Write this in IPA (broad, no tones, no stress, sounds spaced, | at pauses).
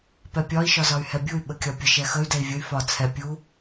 p ɛ pʲ ɒ i̯ ʃ ɒ z ɒ y̯ h ɛ bʲ u y̯ ɓ ə kʲ ɒ pʲ ə ʃ ɛ x ə y̯ d ɛ i̯ vʲ ə y̯ f ɒ t͡sʰ ɛ pʲ u